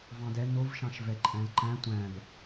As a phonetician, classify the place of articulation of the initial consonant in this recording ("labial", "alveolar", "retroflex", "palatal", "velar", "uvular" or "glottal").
labial